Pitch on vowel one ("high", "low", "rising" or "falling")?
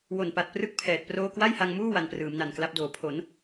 low